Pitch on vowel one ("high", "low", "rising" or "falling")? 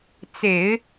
low